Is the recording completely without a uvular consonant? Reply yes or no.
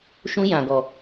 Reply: yes